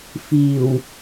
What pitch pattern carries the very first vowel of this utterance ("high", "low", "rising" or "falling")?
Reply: low